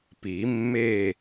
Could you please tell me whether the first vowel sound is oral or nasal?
oral